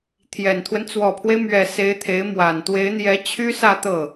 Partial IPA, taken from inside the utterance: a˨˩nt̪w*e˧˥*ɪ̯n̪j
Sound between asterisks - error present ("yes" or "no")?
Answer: no